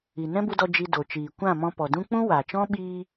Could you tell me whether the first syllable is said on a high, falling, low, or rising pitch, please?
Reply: low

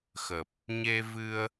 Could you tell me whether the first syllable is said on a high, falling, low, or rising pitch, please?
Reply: low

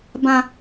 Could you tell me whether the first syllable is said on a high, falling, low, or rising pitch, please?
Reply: high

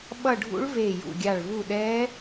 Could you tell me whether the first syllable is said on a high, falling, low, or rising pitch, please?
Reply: falling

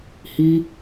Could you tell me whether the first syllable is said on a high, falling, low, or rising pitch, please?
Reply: high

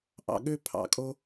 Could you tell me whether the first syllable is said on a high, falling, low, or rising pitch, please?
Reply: low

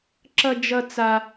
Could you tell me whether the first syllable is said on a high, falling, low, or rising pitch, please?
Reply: high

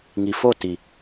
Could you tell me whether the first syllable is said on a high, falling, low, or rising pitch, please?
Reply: low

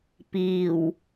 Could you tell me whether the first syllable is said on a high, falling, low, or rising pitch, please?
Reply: low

